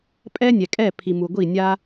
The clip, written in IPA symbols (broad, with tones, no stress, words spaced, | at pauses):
pʼɛ˦nʲɛ˨kʼɛ˦˨ pʰi˨mu˨ɡʷi˦˨nʲa˦